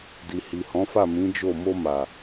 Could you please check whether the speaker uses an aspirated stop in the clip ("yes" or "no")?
no